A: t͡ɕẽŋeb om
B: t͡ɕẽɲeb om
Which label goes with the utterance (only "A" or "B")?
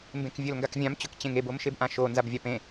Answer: A